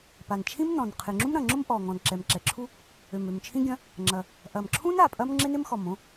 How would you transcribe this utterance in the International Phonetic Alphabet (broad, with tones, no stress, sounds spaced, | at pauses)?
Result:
p a˨˩ n t͡ʃʰ ĩ˥ m n ɔ̃˨˩ n qʰ ɪ˨˩ ŋ͡ǁ ũ˥ m ɾ ɐ̃˨˩ ŋ͡ǁ ʊ˥ m ʔ ɔ˨˩ ŋ ɔ̃˨˩ n ǁ ɛ˨˩ m ǁ ɛ˨˩ ǁʰ u˥ | ø˨˩ m ø˨˩ m t͡ʃʰ ĩ˥ ɡʲ ɐ̃˥ | ŋ͡ǁ ɐ˨˩ | ʔ ɐ˨˩ m ǁʰ ũ˥ n a˨˩ pʼ ɐ˥ m ŋ͡ǁ ɪ˥ n ɪ˥ m x ɔ˨˩ m õ˥